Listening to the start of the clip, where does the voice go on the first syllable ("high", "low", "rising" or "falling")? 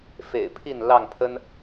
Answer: low